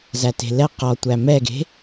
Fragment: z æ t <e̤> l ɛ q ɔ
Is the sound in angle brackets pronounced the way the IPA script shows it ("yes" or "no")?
yes